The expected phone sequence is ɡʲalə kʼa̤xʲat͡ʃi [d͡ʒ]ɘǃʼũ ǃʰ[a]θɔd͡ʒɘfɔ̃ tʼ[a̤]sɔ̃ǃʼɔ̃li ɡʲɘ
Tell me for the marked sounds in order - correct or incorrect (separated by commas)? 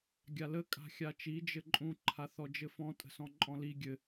correct, correct, incorrect